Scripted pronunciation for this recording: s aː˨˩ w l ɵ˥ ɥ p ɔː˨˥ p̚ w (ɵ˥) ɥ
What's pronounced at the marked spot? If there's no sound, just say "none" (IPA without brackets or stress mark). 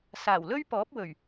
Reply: ɵ˨˩